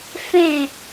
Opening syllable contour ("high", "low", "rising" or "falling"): falling